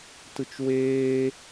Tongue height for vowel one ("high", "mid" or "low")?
high